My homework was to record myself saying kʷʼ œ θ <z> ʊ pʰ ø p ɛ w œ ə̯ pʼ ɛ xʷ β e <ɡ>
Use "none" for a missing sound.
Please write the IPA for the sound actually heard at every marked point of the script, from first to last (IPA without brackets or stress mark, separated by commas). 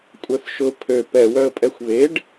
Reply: ʃ, ɖ